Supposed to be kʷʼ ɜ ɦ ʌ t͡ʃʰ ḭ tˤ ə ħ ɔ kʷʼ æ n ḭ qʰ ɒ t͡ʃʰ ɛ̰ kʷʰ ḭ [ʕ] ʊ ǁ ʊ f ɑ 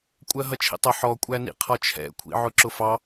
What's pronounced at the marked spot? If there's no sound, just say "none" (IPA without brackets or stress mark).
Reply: ʕ